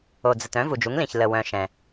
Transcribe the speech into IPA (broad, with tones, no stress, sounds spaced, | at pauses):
o˩ d͡z ə˩ t œ̃˩˥ v u˩ d͡ʒ u˩˥ ŋ l ĩ˩ ç l ə˩ w œ̃˩ ʃ ɛ̃˩